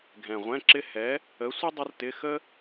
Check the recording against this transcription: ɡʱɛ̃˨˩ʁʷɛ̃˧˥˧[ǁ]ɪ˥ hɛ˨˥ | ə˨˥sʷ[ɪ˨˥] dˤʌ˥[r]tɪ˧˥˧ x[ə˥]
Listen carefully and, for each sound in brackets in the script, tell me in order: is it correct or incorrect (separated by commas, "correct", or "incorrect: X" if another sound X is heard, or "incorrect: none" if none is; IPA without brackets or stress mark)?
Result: correct, incorrect: ɪ˥, correct, correct